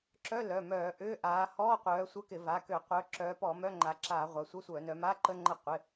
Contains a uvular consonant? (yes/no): yes